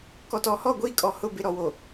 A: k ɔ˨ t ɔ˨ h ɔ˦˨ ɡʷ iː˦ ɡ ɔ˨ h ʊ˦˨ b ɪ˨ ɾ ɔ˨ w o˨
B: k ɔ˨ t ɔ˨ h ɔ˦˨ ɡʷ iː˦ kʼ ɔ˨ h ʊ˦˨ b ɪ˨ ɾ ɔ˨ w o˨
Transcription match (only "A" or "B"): B